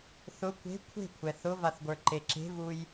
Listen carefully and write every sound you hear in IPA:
θ ʊ kʷ e̤ kʷʰ e̤ kʷʰ ɛ θ ʊ v a θ ɡʷ ə˞ ǃ e ǁ e̤ v u j

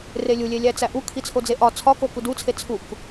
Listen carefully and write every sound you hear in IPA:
r e lʲ u lʲ e lʲ æ t͡s æ ʔ u kʰ i t͡sʰ o d͡z e ʔ ɒ t͡sʰ ɒ k o k u d u t͡sʰ e t͡sʰ u k

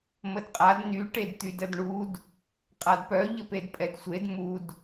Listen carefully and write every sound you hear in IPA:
m ə d qʼ a d n y ʈ e d t̪ y d ə d ɳ u d | qʼ a d p œ ʎ ə p e d pʼ ɛ d sʷ e d m u d

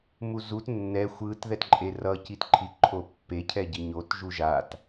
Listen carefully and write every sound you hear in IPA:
m u z u t nː ɛ xʷ ɯ t ð ɛ t ǃʼ e r ʌ c i t ǃʰ i ǃʰ o pː e cʰ ɛ ɟ i ɲ o t ʒ u ʒ a t

